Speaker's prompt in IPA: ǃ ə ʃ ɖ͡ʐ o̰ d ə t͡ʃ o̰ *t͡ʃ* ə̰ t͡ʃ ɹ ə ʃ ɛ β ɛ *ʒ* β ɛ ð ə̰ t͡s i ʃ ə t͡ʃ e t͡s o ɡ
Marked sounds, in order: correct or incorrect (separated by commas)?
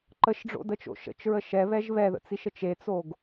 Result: incorrect, correct